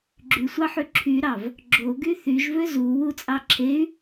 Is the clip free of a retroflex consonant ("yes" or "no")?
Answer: yes